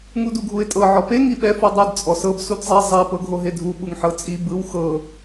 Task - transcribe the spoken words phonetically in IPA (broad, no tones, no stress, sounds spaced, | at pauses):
ŋ u d u ɡʱ u ɪ̯ tʼ ɤ ʕ ɔ p e ŋ i ɓ ɛ f u dˤ ɯ d t͡sʼ ɔ s ɤ b s u d zˤ e zˤ e p ɤ ɡʱ o ɦ e dʱ u ɓ u ŋ ħ ɤ t͡sʼ i b ɯ w x ɤ